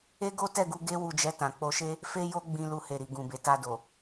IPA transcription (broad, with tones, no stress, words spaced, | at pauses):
e˦ɡo˦tɛ˦˨ɡu˧ ɡe˦ wu˧d͡ʒɛ˧ tã˨k͡po˧ʃe˦ | fe˦jo˦ɡ͡bĩ˧ lu˧he˨ɾi˨ ɡũ˨be˨ta˧do˨